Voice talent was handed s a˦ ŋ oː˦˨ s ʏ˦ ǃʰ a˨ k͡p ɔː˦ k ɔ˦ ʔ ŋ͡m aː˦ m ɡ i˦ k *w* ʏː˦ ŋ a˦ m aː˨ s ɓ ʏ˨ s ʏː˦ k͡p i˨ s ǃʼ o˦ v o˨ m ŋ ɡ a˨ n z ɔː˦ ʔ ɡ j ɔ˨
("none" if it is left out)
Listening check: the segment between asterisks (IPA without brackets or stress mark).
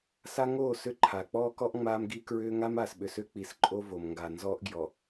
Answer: ɹ